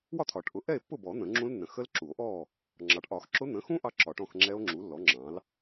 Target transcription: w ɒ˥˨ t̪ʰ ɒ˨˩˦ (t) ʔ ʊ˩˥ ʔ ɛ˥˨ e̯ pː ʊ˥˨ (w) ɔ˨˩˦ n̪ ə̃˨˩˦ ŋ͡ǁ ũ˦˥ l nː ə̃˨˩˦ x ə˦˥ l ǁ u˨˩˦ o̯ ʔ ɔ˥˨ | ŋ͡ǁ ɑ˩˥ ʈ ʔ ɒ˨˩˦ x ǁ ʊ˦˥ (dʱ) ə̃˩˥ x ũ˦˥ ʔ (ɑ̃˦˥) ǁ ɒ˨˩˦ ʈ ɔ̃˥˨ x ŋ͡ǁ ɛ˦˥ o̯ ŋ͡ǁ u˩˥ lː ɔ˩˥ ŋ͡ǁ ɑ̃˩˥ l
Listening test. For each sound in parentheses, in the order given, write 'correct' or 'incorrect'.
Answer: incorrect: ʈ, incorrect: b, incorrect: n̪, incorrect: ɑ˦˥

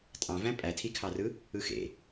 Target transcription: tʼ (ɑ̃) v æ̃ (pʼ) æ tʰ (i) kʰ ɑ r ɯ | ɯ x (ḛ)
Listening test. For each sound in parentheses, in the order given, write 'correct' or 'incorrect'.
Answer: correct, correct, correct, correct

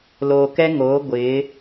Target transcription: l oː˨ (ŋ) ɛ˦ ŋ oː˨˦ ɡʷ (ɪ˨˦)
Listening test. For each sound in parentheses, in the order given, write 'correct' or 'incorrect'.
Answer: incorrect: k, correct

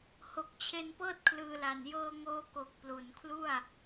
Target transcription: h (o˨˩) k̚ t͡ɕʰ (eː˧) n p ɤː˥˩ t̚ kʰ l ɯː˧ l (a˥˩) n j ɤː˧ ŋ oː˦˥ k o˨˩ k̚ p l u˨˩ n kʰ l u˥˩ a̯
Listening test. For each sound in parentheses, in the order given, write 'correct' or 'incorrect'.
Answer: correct, incorrect: e˧, incorrect: a˨˩

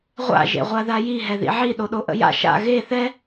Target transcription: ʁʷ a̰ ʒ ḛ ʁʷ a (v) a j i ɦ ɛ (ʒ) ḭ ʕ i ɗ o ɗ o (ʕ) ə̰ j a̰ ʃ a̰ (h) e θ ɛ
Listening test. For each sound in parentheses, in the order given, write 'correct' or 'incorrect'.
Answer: incorrect: ð, incorrect: ð, incorrect: ʔ, incorrect: ɣ

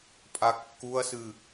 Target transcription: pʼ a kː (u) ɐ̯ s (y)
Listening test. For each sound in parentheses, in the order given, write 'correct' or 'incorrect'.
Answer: correct, incorrect: ɨ

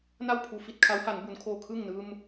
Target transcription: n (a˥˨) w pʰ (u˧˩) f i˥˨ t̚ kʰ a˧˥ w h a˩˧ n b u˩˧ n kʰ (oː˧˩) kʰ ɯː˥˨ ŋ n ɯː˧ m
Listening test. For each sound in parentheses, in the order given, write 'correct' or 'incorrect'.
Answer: correct, correct, correct

